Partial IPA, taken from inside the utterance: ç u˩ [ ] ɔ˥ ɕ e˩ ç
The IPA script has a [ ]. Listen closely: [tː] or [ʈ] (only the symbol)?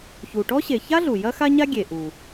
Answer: ʈ